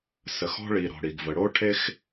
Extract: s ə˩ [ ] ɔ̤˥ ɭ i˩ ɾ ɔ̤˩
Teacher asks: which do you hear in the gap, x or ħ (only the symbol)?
x